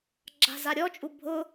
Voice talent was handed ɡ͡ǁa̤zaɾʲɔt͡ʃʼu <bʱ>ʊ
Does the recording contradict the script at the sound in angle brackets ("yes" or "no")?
no